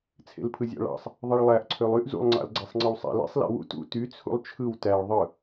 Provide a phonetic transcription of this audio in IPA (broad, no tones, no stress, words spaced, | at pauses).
t͡sʰḛlpʰɯzʲɑ̰ɭɑ̰sˤ | ðˤiɭlˠæʔ ǀʰølˠyʔ zṵlˠ ŋ͡ǀɑ̰lɡ͡ǀæsˤŋ͡ǀɯwsˤæ̰ lḛsˤ lḛwṵ tṵ ty t͡sʰṵlˠt͡ʃʰɯw tæɭ ðˤɯ